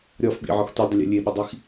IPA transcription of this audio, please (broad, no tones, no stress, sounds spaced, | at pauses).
ɾʲ ɒ f ɓ ḭ ʕ ɒ x tʷ i lʲ dˤ ə lʲ ḛ lʲ e ɓ ɪ dˤ i x